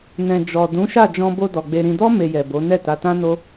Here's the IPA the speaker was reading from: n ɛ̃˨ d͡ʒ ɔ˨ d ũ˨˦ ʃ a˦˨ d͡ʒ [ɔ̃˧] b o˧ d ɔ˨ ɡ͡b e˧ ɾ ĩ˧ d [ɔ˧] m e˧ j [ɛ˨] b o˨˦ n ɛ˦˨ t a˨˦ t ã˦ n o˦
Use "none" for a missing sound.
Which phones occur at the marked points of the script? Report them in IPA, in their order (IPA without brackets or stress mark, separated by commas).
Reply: ɔ̃˧, ɔ˦, ɛ˨